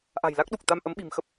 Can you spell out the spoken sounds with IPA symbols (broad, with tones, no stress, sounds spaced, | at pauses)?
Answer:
ʔ a̤˨˩ j l a˦˥ k̚ ɗ u˨˩ k̚ t̪ a˧ m ʔ ə˨˦ m ɓ i̤˨˩ m x ə˦˥ p̚